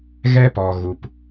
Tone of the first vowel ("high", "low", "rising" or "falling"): high